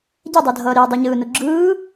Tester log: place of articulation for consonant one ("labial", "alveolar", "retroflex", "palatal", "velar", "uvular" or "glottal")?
palatal